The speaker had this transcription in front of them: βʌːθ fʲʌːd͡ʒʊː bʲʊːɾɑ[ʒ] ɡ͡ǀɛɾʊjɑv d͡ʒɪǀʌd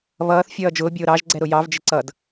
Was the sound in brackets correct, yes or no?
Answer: yes